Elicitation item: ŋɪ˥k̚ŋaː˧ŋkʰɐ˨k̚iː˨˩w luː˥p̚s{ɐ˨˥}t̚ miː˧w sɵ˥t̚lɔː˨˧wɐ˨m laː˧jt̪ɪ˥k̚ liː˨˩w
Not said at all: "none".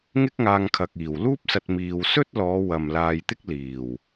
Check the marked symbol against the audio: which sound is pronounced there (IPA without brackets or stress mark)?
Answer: ɐ˧